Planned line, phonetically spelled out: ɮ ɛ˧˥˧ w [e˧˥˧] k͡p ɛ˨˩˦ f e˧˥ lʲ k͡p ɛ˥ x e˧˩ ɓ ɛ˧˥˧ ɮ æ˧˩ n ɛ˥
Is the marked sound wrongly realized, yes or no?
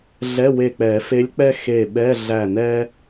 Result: yes